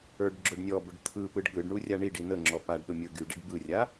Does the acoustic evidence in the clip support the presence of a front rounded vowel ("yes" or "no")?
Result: yes